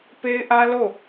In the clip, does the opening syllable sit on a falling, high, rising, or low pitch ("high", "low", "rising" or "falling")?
high